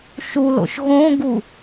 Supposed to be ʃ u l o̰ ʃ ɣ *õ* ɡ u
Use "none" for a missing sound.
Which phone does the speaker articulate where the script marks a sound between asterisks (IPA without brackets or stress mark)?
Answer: õ